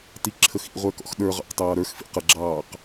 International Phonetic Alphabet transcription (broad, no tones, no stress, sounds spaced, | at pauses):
t i ǁʰ ə x ḭ ʁʷ ə˞ k ɔ̰ x ɗ ə˞ ʁ ɑ̰ q t ɑː ɾ ə˞ x f ḭ q ə ɡ͡ǁ ɑː q